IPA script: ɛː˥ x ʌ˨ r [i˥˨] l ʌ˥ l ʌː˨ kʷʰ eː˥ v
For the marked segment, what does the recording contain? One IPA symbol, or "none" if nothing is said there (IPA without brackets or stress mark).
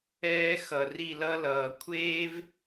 i˥˨